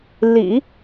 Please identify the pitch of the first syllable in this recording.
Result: low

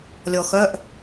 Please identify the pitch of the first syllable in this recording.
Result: low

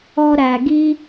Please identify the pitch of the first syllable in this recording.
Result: high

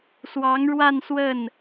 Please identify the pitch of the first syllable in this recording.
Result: rising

